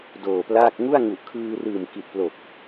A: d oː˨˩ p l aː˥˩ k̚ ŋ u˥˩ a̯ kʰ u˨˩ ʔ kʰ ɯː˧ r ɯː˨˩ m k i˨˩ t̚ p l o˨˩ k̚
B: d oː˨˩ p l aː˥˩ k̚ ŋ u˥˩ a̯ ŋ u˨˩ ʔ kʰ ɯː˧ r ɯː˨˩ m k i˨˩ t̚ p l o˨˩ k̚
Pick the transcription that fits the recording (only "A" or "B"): B